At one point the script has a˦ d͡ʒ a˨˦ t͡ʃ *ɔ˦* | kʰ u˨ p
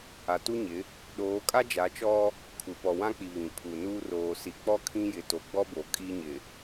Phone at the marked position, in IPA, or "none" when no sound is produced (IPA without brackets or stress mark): ɔ˦